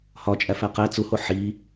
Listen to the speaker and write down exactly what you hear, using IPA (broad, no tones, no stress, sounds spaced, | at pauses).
h ɒ t͡ʃʼ æ f æ q æ t͡s u h o ħ i